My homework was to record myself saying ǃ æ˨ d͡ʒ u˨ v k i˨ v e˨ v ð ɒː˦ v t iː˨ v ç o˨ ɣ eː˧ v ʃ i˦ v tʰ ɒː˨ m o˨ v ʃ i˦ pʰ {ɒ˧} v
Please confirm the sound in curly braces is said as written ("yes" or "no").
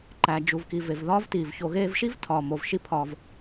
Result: yes